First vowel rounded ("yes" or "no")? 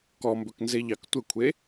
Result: yes